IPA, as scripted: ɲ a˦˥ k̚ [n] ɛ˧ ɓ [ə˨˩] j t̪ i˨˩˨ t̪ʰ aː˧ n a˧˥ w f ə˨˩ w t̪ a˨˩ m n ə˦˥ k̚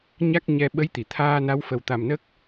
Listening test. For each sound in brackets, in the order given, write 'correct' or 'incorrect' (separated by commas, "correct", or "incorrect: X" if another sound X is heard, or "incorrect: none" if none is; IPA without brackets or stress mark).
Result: incorrect: ɲ, incorrect: ə˧˥